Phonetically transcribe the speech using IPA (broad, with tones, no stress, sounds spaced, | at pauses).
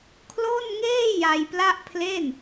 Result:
kʰ l o˥˩ n ŋ eː˥˩ j a˧ j p l a˥˩ ʔ pʰ l e˥˩ n